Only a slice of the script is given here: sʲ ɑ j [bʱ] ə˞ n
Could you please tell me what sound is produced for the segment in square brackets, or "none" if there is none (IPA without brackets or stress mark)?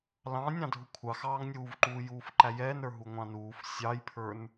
pʰ